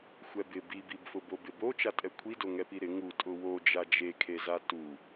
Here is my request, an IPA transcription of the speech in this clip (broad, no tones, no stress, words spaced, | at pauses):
xʷɛbɪ bibibfʊ bobɪbo t͡ʃatʼɛkʷʰido ŋɛpiɾɪ ŋu tʼʊwo d͡ʒad͡ʒekʰeza tu